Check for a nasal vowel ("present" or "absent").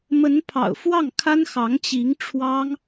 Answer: absent